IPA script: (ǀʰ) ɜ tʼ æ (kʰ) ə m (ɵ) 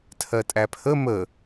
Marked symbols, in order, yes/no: no, no, no

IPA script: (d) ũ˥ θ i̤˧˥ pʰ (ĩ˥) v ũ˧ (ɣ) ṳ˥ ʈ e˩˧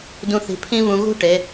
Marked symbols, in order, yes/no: yes, yes, yes

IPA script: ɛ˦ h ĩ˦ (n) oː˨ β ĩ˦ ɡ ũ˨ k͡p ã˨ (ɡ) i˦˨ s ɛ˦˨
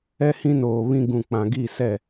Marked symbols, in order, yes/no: yes, yes

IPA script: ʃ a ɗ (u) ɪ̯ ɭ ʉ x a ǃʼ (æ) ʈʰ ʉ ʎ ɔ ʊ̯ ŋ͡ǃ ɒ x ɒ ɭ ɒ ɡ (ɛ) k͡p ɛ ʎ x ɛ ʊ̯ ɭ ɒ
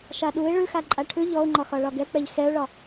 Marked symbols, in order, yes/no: yes, no, yes

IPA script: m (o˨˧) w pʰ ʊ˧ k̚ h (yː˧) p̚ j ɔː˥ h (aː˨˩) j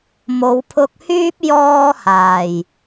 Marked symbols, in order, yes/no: yes, no, yes

